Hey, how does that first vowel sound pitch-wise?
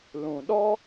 low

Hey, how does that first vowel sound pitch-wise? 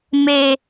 low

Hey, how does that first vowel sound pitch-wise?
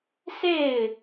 falling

